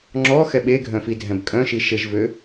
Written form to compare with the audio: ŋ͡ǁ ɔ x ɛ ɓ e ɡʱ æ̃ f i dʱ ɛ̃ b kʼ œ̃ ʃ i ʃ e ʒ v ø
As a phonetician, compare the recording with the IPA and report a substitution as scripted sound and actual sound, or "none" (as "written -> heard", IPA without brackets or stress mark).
æ̃ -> œ̃